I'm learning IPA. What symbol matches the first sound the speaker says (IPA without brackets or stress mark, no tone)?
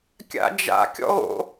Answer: kʲ